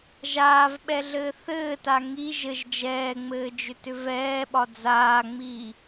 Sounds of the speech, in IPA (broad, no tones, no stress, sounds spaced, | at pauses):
ʒ aː v ɓ ɛ ɮ ɘː θ ɘː t a ŋ i ʒ ɘ ʒ d͡ʒ ɛː ŋ͡m ɘː d͡ʒ ʏ t ʏ v ɛː ɓ ɒ d͡z aː ŋ͡m iː